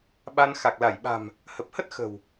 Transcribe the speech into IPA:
ɓ a˧ n x a˨˩ k̚ l a˧˩ j ɓ a̤˨˩ m | h ə˨˩ p̚ h ə˦˥ t̚ x ə̤˨˩ w

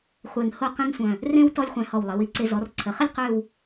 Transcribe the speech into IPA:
χʷ e˧˩ ŋ h o˥˧ q ẽ˥ ŋ sʷ œ̃˧˩ | r ẽ˥ w t ɔ˥ lʲ χʷ ɛ̃˧ h ɔ˧˩ w lˠ e˩˧ w i˩˧ ǀ e˧ z ɔ˩˧ r ǀʰ ə˩˧ χ ə˥ lʲ q ø˥˧ w

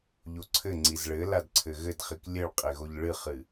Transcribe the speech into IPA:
ʎ o ǀʰ ɘ ŋ͡ǀ i z ɭ ɘ l a d ǀʰ ɘ ɣ ɘ d χ i k lʲ ɘ ɭ qʼ e ɣ o ʎ ɭ ɨ χ ɨ

